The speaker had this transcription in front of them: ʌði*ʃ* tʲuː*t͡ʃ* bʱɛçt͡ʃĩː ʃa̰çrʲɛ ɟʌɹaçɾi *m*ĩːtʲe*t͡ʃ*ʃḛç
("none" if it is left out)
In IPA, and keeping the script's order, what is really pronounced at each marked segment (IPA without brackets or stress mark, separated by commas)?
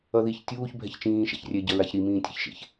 ç, ç, m, ç